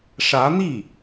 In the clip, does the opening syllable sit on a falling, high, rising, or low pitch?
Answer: rising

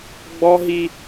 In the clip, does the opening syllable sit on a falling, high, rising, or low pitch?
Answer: high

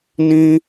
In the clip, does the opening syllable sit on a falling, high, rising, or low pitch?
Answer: high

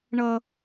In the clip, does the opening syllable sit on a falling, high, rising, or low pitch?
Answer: high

